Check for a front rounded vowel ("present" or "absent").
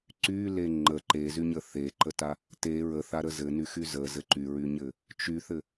present